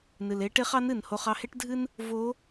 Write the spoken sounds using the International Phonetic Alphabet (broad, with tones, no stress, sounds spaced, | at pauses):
n ɨ˩ l e˧˥ ʈ e˧˥ χ ɑ˧˥ n ɨ˩ n h o˧ χ ɑ˧ h e˥ ʈ dʱ ɨ˥ n | v o˧˥